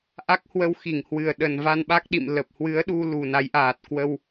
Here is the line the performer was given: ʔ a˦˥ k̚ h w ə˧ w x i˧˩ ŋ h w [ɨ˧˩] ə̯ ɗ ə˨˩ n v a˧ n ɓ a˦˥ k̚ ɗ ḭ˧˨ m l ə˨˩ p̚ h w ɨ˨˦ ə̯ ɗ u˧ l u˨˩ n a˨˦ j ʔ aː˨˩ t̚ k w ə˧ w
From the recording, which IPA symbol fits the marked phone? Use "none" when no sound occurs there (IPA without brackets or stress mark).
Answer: ɨ˨˩